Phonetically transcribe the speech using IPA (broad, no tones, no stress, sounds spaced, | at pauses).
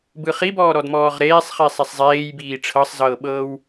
b ɯ χ i b ɔː ɾ ɔ d m ɔː ʁ ɾ eː sˤ χ i sˤ e sˤ zˤ eː j b iː ʈ͡ʂʰ ɤ sˤ z ɤː ɓ ɤː w